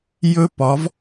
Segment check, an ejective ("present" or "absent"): absent